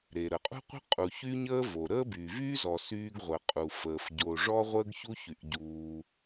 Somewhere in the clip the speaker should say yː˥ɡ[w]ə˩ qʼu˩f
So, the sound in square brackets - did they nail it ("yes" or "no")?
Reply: no